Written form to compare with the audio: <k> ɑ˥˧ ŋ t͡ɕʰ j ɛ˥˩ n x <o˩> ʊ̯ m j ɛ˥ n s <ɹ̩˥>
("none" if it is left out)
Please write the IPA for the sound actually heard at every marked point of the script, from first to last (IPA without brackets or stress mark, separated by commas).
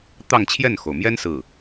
t̪, o˩, ɹ̩˥˩